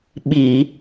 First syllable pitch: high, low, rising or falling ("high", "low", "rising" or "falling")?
low